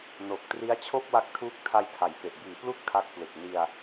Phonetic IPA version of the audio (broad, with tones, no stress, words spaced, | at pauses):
no˨˩k̚tri˦˥a̯t͡ɕʰo˥˩k̚wa˦˥k̚ tʰuː˦˥k̚tʰa˧jtʰa˩˦j fe˨˩ʔ biː˩˦plu˦˥k̚ tʰa˦˥k̚plɯ˨˩k̚ ni˧a̯